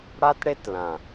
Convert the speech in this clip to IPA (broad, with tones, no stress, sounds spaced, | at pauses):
ɽ a˦ t ɽ e˦ t l ã˨